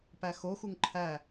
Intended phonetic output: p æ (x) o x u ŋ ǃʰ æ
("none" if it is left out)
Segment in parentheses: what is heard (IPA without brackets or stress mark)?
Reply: x